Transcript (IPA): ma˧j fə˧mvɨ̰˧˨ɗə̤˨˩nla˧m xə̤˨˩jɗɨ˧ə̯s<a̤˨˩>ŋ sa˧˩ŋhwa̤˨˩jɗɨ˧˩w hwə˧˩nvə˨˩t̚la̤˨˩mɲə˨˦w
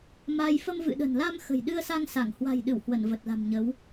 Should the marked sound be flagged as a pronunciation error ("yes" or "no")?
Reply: yes